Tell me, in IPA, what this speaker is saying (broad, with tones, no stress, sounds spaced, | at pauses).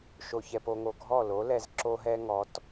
ʃ o˨ ç ɛ˨ p o˧ ŋ o˨ ɡʱ ɔ˦˨ l o˨˦ l ɛ˧ z ǁ o˦ ɦ ɛ˦ ŋ ɔ˨˦ t